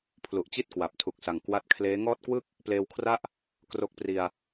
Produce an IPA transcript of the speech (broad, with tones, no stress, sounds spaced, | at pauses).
pʰ l u˨˩ ʔ t͡ɕ i˥˩ t̚ k w a˨˩ p̚ tʰ u˨˩ k̚ s a˨˩ ŋ k w a˦˥ t̚ kʰ l eː˦˥ ŋ ɔː˥˩ t̚ k w ɯ˥˩ k̚ | p l eː˧ w kʰ r a˥˩ ʔ | k r o˦˥ k̚ p r i˧ a̯